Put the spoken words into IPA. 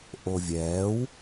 ʔ o vʲ ɛː w

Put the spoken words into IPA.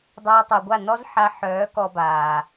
dˤ ɛː˧ tˤ œ˨ ɡʷ a˦˨ n ɔ˦ z ħ a˧ ħ œː˨˦ k ɔ˧ b aː˨

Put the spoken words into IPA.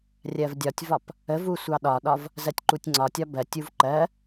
rʲ ɜ v dʲ ɒ tʲ v ɒ p | ə v u sʷ ɑ ɗ ɒ ɗ ɒ v | z ɜ tʲ ǃ u tʲ ŋ͡ǀ ɒ tʲ ɒ b ɜ tʲ u v ǃ ɜ

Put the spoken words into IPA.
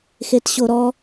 x e t ɕ o ɾ ɔ

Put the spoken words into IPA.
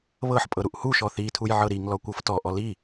β ɤ ħ pʼ ɤ ɾ u ʔ h u ʃ ɔ θ i tʰ u j ʕ ɤ ɾ i ŋ l ɔ kʷ ɤ f t ɔ ʔ ɔ l i

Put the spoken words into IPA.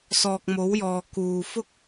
s ɔː˨ k̚ m o˨˥ w j ɔː˨ k uː˨ f ʊ˥ k̚

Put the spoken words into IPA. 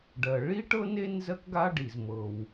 ɖ ɜ˩ ɭ i˥ ʈ ɤ˥ n e˥ n z ɜ˧ k ɡ a˧ ɖ i˩ z m ɤ˩ w

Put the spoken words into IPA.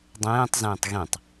dˤ ẽː tˤ z ẽː tˤ ɣ ĩ tˤ

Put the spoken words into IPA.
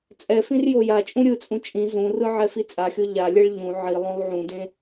t͡sʼ ɛ f ĩ r j o j a t͡ʃʼ ũ ɾʲ ɯ t͡sʼ ũ t͡ʃʼ ĩ z ũ r ɯ ʕ ɛ f i t͡sʼ a xʲ o ʎ a lʲ ɛ ɭ ʎ ũ ʕ i lˠ õ lˠ ʕ ũ d ẽ

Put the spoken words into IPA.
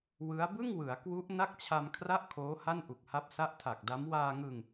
w ɯ˦˥ a̯ b ɯ˥˩ ŋ w ɯ˩˦ a̯ k w u˦˥ ʔ n a˥˩ k̚ t͡ɕʰ a˧ m kʰ r a˥˩ ʔ kʰ oː˦˥ h a˥˩ n ʔ u˨˩ k̚ h a˦˥ p̚ s a˦˥ ʔ tʰ a˨˩ k̚ d a˦˥ m w aː˧ ŋ ɯ˧ ŋ

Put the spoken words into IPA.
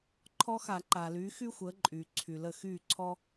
ǃʰ ɔ˥ x a˧˩˧ ǃ aː˩ l yː˩˥ x y˥ xʷ əː˩˥ ǃʼ yː˩ ǀʰ y˩ l ə˥˩ x yː˥˩ ǀʰ ɔ˥

